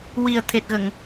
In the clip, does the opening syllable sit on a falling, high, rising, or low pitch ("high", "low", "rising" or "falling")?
low